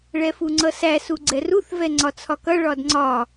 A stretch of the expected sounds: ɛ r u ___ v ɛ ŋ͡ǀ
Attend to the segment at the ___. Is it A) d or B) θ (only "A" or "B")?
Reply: B